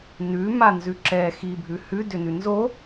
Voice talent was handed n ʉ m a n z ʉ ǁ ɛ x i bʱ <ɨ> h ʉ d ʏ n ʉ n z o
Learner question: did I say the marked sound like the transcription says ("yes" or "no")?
no